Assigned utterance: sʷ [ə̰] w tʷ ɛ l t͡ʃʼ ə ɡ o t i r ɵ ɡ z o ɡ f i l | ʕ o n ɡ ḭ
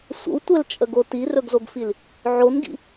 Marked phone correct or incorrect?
correct